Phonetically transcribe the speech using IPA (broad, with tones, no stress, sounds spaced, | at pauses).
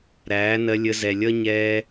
ɾ æː˨˦ n ɜ˧ lʲ ə˧ z ɛ˨ lʲ ʌ˦ ɲ ɛː˧